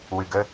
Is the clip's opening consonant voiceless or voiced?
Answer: voiced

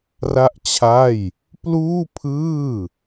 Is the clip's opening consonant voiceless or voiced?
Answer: voiced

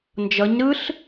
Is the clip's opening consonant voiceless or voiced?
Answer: voiced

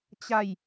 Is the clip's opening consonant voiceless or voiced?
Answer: voiceless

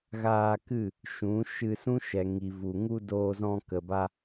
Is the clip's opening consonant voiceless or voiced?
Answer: voiced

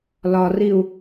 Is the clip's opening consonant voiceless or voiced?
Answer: voiced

